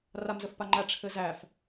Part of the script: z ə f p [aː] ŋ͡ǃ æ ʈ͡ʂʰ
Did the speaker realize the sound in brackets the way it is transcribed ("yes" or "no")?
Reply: no